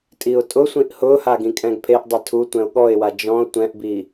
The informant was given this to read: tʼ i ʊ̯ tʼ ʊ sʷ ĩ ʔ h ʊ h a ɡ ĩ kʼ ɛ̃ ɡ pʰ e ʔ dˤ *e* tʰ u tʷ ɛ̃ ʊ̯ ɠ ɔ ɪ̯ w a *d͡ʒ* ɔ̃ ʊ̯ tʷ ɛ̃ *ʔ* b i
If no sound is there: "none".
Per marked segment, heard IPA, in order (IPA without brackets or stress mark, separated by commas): e, d͡ʒ, ʔ